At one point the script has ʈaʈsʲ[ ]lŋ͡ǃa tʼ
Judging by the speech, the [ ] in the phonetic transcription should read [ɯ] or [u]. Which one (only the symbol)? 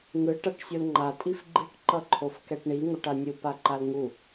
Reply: u